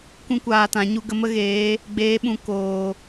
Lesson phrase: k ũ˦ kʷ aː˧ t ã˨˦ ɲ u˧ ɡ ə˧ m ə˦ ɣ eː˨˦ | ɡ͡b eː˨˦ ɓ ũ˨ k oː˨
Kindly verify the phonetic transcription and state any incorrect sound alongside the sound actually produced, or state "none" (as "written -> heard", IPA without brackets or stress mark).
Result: none